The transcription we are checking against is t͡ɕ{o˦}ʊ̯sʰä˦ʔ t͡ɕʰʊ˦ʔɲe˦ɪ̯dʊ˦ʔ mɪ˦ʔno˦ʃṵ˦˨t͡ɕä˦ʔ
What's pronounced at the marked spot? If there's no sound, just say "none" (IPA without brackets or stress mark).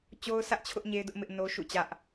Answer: o˦